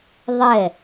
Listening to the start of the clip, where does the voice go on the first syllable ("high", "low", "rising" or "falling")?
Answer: falling